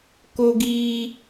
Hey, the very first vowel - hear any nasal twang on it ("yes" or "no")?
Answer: no